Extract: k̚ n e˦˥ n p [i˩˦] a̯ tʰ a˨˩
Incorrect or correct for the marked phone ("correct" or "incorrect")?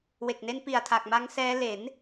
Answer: incorrect